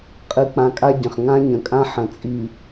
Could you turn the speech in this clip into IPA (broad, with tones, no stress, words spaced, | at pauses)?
qʼɨ˨k͡pã˨ kʼa˦ɟə̃˨χ ŋã˦ɲə̃˨kʼã˦ ħə̃˨t͡sʼi˨